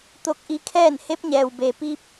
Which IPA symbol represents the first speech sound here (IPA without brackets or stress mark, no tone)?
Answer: t̪